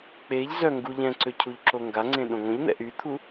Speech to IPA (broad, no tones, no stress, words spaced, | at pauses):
k͡peʎ zœ ŋɡu ʎɛ̃ǀø cʰuʎǁoŋɡaŋ͡ǀẽ ɗõŋõʎn̪ɛ̰ ʔyt̪ʰu